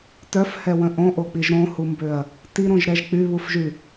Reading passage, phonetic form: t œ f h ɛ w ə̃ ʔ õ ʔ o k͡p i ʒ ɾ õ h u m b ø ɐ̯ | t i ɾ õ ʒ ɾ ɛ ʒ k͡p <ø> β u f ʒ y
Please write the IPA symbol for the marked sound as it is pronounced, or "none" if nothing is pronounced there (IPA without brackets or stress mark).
y